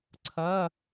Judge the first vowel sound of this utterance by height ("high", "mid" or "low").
low